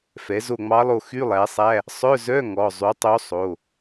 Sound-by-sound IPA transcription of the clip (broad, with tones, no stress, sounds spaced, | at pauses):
f ɛ˩˥ z o˦˨ ŋ͡m ɑ˧˥ lˠ o˦˨ x y˧˥˧ lˠ æ˩˥ sˤ æ˧˥˧ | sˤ œ˧˥˧ z œ˧˥˧ ŋ ɔ˩˧˩ zˤ y˩˥ tˤ o˧˥ sˤ o˩˧˩